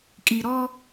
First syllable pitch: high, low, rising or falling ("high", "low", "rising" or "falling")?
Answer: low